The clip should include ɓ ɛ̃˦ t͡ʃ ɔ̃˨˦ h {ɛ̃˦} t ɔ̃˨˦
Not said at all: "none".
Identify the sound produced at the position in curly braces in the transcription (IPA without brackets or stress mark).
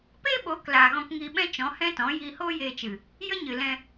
ɛ̃˦